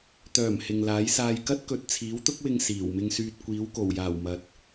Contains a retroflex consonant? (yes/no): no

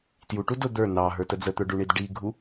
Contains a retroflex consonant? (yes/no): yes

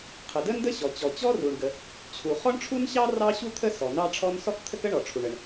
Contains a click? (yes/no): no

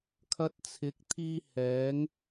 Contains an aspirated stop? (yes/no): yes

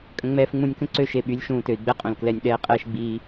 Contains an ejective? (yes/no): yes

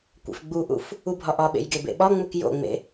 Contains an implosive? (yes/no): yes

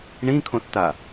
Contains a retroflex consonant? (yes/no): yes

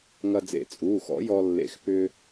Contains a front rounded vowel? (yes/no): yes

